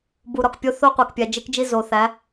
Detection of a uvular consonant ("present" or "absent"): present